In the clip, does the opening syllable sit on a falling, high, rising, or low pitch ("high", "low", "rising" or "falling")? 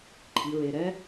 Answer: low